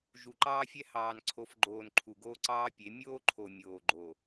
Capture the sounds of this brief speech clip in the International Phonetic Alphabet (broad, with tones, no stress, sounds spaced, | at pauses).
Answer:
ʒ u˨ ǃ ɑː˦ fʲ ɛ˦ h ɑː˨ n ǀʰ o˨ f ɡ͡ǃ oː˨ n ǃʰ u˨ ɡ oː˦ ǀ ɑː˦ pʲ e˨˦ mʲ oː˦ ǃʰ o˨ mʲ oː˨ ɡ͡ǃ o˨